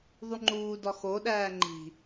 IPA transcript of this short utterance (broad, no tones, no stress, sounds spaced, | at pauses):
ðˤ u ŋ͡ǃ uː d ɒ x o ɗ æː ŋ͡ǃ i̤